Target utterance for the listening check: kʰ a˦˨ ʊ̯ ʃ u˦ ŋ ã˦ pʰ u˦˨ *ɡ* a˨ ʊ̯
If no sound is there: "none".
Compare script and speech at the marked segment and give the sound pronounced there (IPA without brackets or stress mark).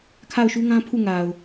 ŋ